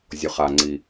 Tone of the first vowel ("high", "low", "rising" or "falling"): low